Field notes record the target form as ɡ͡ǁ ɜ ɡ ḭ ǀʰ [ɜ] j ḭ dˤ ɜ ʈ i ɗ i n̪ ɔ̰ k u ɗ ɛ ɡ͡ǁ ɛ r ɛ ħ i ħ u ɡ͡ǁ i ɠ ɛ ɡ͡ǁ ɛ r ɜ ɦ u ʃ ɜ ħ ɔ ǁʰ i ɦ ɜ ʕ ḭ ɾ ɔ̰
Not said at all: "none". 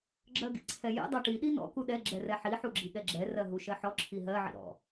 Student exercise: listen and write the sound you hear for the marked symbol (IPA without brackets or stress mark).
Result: ɛ